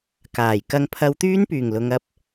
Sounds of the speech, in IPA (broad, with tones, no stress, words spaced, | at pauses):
kaː˨˩jkɐ˧ŋ pʰɐ˧wt̪yː˥npyː˨˩ŋlʊ˨ŋ ɐ˧p̚